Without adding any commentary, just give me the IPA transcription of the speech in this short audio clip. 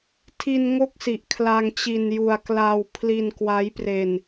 tʰ i˧ n ŋ o˥˩ k̚ s i˨˩ ʔ kʰ l a˧ ŋ t͡ɕ i˧ n j u˧ a̯ k l a˧ w pʰ l i˧ n k w a˦˥ j p r e˧ n

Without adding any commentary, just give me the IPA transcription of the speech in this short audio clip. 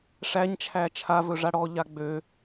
ʂ æ ɲ t͡ʃʰ æ t͡ʃʰ a v ɵ ʐ a ɽ ɔ ʎ a ɡ͡b ø

